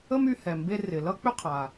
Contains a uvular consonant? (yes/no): yes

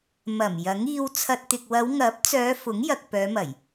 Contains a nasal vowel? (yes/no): no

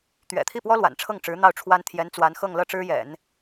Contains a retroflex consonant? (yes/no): yes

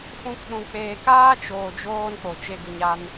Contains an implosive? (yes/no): yes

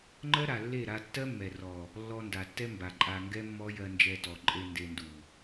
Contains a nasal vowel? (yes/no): no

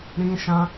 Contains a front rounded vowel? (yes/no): no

